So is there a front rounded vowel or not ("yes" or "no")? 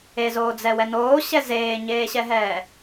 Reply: no